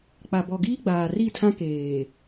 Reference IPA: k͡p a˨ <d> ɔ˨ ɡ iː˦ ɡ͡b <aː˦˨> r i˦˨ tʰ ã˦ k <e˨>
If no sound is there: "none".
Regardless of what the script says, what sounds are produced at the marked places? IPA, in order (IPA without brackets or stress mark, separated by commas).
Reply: b, aː˨, eː˨